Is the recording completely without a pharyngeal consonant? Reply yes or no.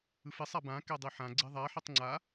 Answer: no